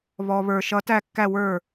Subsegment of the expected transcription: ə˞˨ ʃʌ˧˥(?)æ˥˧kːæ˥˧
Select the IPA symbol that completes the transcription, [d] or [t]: t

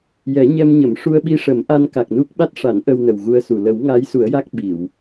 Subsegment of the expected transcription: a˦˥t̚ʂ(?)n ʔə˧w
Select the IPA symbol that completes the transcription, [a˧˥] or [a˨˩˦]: a˨˩˦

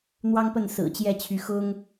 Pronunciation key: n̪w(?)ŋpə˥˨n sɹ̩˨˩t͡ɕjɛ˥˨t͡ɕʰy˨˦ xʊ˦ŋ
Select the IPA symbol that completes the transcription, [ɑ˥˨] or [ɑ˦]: ɑ˦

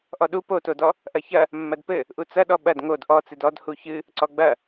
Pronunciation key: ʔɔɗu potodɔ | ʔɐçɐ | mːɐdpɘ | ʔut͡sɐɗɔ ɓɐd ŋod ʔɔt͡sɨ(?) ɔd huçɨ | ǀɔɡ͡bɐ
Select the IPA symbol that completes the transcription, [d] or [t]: d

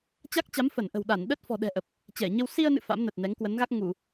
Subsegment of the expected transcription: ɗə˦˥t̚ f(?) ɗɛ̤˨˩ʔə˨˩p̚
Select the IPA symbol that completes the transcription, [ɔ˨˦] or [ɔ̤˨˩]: ɔ̤˨˩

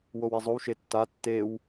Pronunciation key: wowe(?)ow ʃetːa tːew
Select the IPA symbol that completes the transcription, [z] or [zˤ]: zˤ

